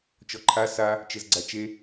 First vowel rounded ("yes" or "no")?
yes